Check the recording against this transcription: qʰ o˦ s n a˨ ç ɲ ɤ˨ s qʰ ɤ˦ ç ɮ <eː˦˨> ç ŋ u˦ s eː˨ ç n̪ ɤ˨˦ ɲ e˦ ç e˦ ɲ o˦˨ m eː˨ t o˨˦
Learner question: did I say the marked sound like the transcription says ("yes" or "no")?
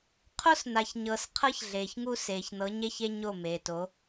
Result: no